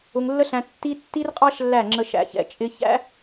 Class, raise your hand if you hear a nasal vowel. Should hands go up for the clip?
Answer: yes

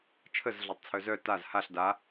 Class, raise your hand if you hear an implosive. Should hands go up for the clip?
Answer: no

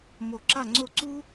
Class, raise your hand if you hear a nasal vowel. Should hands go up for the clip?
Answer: no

